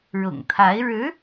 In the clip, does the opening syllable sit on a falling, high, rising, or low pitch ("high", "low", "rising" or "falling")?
low